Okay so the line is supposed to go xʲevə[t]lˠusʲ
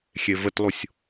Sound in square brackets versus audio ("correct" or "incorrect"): correct